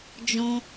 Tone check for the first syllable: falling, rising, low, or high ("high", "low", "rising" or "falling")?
high